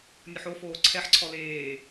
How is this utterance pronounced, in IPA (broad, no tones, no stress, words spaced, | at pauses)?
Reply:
nʲʊħofoː ǀʰɛħǀʰɔ leː